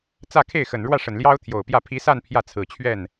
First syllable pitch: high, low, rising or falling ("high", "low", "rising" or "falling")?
falling